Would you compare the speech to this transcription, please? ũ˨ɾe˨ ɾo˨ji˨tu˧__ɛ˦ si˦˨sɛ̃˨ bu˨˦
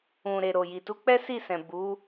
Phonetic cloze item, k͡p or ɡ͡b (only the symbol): k͡p